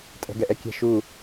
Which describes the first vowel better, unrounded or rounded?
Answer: unrounded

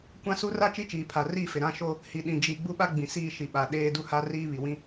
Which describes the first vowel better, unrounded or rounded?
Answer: unrounded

